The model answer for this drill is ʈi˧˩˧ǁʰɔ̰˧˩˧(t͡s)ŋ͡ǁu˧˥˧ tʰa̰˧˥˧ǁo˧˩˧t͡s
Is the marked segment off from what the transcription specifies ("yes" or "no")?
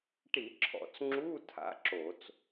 no